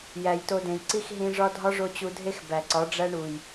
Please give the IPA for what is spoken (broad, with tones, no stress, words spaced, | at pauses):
jæ˨jto˧dẽ˨j ǀi˦xɦĩ˧ʐɒ˦ dʱɒ˦ʐo˧t͡ɕu˧dʱe˦x bæ˨ǀɒ˨˦ɖ͡ʐæ˦ɳu˨j